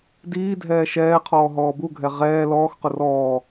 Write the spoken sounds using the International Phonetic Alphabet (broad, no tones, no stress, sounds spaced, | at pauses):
d iː dʱ ɛː ʃ ɛː qʰ ɔː ɦ ɔː b u ɡʱ ɛ ʁ ɛː l ɔː x q ʊ r ɔː